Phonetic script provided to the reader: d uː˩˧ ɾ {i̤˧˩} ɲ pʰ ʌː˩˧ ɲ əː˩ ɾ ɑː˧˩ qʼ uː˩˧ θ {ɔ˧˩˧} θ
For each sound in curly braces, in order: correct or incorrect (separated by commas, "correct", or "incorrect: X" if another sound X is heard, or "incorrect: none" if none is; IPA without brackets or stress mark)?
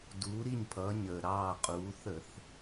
incorrect: i˧˩, incorrect: ə˧˩˧